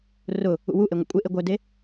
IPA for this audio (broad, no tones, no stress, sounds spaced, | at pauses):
r ʊ | ṵ w u ʔ e ŋʷ ḛ kʷʼ ɪ ʔ e ɡʷ œ d e